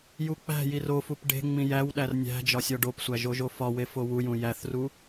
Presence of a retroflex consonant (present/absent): present